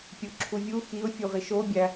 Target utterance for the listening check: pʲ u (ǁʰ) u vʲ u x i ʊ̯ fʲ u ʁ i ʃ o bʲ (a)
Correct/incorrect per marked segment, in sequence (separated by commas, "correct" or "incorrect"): correct, incorrect